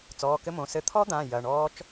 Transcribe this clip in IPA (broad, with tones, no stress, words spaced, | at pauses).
t͡sɔː˩˧˩kɘ˦˥mõ˩˧˩ sɘ˧˩t̪ʰɔ˦˥d̪ã˩˧˩ jɐ˩˧˩ɳɔː˦˥t͡ʃ